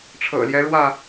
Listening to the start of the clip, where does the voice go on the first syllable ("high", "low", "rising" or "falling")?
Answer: low